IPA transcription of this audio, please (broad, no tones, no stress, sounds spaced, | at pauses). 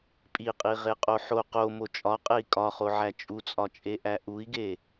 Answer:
pʼ i qʼ i ʁ e qʼ o ħ o q o m o t͡ʃʼ ɒ qʼ e i̯ kʼ ɒ χ o ʕ æ t͡ʃʼ u t͡sʼ ɒ t͡ʃʼ e ʔ æ ʔ u i̯ ɡ e